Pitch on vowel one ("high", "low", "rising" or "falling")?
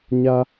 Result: high